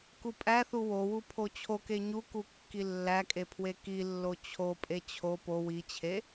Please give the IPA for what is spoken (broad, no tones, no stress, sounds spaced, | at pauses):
k u pʼ æ θ u w o w u pʰ o t͡ɕʰ o k e ɲ u k u kː i lː æ kʼ e pʰ w e k i lː o t͡ɕʰ o pʼ e t͡ɕʰ o p o w i t͡ɕʰ e